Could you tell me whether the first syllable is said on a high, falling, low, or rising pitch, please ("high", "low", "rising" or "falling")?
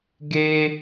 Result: high